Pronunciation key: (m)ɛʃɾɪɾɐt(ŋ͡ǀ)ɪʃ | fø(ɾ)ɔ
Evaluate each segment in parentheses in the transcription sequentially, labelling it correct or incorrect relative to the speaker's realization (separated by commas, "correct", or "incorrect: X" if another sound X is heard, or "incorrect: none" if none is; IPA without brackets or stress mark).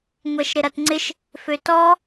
incorrect: ŋʷ, correct, incorrect: t